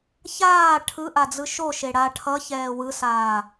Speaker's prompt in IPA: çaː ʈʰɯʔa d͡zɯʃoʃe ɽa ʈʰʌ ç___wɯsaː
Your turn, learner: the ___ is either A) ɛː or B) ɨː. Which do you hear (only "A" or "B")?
A